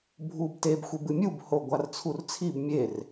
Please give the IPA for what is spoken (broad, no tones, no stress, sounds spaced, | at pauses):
bʱ u b t e b xʷ e b ɨ mʲ u b h o ɡʷ a r t͡sʰ u r t͡sʰ i b mʲ e r